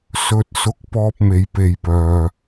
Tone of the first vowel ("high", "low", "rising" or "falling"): low